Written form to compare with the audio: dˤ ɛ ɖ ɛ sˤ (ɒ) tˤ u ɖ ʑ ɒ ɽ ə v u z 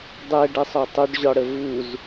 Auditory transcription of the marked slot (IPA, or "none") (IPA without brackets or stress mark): ɒ